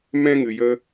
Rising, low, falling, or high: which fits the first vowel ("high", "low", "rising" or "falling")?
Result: high